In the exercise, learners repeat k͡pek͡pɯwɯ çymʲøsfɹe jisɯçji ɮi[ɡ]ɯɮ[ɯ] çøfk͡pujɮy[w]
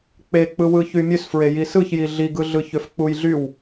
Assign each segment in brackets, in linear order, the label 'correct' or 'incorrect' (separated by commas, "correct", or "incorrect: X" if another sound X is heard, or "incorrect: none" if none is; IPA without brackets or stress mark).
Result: correct, correct, correct